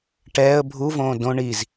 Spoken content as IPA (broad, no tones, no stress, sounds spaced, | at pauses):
ʈ ɛː ə̯ bʱ u v õː d õ ɳ i z